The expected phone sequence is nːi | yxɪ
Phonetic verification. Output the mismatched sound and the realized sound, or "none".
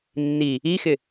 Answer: y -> i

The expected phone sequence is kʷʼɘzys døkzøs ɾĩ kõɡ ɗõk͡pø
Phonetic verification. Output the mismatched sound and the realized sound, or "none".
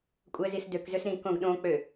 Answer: y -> i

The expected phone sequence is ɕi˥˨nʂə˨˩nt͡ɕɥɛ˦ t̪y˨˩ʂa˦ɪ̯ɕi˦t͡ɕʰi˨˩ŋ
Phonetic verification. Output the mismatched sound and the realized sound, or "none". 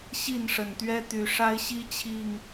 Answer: t͡ɕ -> t̪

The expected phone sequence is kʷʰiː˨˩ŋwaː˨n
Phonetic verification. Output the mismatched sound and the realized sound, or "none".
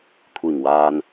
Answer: none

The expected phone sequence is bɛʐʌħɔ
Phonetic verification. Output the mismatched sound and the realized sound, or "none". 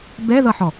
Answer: ʐ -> ð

